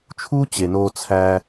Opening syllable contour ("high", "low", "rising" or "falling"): high